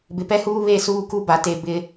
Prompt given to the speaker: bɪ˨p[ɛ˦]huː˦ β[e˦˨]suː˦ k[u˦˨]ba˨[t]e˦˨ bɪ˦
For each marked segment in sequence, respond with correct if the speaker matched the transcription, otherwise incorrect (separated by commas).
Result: correct, correct, incorrect, correct